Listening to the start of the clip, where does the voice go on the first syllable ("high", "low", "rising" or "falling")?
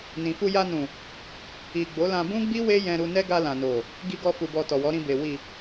low